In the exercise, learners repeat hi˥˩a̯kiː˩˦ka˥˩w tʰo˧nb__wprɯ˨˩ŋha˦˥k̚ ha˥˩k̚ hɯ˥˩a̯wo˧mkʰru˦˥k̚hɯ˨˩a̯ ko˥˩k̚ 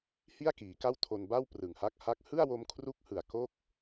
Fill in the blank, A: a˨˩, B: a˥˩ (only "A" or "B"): B